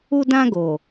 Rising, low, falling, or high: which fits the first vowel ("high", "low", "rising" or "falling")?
high